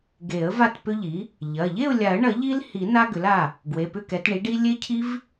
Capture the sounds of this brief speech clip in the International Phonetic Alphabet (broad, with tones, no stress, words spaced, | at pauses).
ɡe˨˩˦ə̯ va˥˨tpʏ˦˥ʎi˩˥ | ʎɐ˩˧˩ ʎe˥˨ʊ̯lʲa˨˩˦ə̯ɳɐ˨˩˦ ʎi˦˥lhi˨˩˦ na˦˥ɡʏ˩˥la˩˧˩ | ɡwe˩˧˩pʏ˥˨kɛ˩˥t ɳi˩˥ɖi˦˥ lʲe˦˥cʰi˦˥v